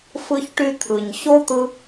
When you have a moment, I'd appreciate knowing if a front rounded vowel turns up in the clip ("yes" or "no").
yes